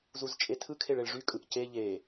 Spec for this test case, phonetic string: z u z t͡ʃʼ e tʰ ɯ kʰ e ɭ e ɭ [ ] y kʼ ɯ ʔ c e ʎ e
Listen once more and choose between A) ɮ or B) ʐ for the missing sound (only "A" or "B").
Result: B